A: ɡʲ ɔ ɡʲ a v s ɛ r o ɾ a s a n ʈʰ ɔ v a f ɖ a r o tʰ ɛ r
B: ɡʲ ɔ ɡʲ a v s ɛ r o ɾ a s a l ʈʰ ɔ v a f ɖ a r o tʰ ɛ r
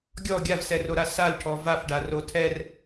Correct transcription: B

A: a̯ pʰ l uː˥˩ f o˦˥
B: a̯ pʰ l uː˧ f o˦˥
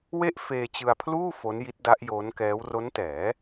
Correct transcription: A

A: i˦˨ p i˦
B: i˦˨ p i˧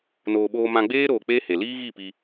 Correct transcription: B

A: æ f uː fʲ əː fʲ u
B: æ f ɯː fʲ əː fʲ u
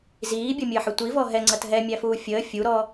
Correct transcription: A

